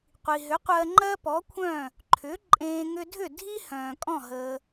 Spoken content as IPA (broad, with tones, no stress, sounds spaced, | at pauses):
qʷ i˩ ɦ ʏ˩˥ qʷ ɜ˧ ŋ͡ǃ ɜ˥ p ɔ˩˥ kʷʰ œ̃˥˩ | ǃʰ ʏ˩˥ ǃʼ ẽː˧ ŋ ʏ˧ dʱ ʏ˥˩ dʱ i˥ h œ̃ː˩ kʼ ɔ̃˥˩ ɦ əː˩